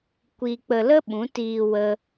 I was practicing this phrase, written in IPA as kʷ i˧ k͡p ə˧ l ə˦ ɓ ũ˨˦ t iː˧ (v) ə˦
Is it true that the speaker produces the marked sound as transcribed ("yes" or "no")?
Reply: no